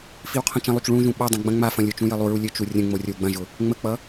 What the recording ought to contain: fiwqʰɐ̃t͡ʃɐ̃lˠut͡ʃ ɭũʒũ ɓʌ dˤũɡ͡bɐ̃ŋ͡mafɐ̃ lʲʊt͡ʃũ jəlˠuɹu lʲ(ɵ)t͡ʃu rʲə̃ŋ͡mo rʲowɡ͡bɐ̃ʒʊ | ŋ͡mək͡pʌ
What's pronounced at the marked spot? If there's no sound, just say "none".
ɵ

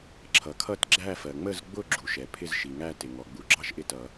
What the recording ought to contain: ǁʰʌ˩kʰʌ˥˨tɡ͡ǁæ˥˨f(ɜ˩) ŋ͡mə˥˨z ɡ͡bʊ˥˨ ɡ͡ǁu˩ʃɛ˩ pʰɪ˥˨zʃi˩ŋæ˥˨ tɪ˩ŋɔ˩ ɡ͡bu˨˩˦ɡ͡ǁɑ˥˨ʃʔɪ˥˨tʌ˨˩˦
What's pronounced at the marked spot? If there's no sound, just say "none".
ɜ˩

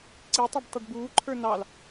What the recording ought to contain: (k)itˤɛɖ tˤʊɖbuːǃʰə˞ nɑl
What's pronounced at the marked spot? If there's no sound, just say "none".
ǀ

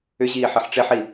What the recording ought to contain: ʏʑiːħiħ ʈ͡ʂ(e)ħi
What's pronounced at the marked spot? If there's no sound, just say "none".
e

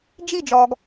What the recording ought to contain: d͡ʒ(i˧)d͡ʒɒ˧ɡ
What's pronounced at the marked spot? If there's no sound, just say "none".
i˥˧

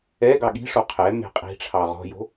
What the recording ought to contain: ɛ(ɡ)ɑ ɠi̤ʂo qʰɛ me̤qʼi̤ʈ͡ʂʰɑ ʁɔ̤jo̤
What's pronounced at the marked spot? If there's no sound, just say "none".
ɡ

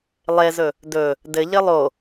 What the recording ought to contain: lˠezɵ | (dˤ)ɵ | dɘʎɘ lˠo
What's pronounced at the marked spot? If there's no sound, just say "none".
d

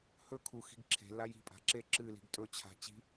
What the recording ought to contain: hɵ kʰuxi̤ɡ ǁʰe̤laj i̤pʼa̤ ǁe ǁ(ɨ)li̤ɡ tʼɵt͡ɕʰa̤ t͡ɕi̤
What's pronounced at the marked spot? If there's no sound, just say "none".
ɨ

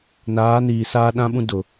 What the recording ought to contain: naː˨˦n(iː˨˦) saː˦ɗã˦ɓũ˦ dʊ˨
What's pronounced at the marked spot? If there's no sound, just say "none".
iː˨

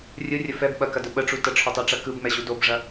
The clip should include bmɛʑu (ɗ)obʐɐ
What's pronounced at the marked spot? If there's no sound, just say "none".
d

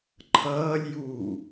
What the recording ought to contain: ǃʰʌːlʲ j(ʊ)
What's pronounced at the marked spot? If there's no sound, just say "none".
u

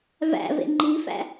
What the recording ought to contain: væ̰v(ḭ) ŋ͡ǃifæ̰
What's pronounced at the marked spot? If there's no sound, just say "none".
ḛ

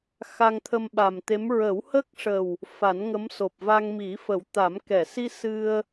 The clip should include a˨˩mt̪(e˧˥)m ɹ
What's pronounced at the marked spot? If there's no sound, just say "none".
e˧˥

